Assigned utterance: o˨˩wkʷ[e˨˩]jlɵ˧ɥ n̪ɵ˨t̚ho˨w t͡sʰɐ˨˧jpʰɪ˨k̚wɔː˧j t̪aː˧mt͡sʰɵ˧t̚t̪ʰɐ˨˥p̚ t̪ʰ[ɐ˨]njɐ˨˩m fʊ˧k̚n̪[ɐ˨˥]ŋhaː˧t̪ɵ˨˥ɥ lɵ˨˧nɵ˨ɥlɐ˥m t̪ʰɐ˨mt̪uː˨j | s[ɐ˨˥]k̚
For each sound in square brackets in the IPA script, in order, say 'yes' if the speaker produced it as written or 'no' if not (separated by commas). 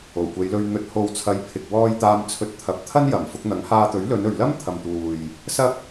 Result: no, no, yes, no